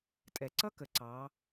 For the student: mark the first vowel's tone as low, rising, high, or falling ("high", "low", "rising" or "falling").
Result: low